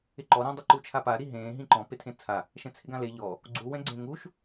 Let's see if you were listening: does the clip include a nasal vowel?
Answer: yes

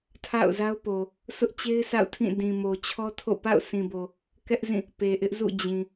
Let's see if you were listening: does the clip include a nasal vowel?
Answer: yes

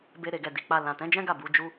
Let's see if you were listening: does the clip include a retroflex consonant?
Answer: no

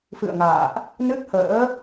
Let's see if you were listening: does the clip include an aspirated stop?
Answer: no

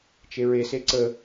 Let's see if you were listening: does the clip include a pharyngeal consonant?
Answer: no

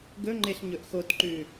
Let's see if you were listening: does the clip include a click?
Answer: yes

